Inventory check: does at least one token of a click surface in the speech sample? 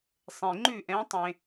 yes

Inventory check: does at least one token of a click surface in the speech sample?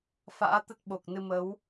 no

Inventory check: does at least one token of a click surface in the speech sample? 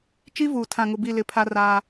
no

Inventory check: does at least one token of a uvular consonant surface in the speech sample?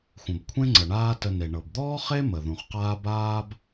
yes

